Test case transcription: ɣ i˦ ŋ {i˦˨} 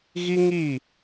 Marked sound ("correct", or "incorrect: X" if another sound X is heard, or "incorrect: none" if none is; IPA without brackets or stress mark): correct